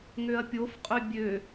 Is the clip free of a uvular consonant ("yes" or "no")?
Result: no